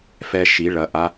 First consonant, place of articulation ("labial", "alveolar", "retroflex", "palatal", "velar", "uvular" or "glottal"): labial